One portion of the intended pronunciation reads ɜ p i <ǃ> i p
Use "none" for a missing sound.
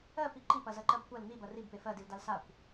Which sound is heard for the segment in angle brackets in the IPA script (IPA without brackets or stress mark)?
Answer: ǃ